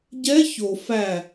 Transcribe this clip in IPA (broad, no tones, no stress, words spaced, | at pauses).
ɟɛ ço fæ